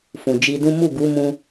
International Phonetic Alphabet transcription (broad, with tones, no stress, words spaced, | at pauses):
fũ˨d͡ʒi˧dũ˦ mu˦˨ɡu˨˦mũ˧